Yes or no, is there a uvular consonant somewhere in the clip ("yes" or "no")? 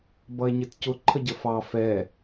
no